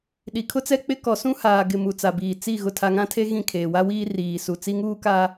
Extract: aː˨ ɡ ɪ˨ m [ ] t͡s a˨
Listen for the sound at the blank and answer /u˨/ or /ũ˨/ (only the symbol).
u˨